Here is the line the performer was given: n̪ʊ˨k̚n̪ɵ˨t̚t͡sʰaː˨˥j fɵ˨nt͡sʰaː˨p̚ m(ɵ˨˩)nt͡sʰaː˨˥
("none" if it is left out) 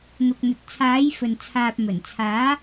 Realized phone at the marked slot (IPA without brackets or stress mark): ɵ˨˩